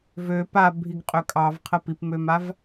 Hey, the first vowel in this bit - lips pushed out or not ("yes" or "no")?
yes